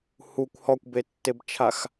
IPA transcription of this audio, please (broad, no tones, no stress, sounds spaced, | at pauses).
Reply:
h u kʷ h ɔ kʷ b e tː e b t͡ʃʰ a x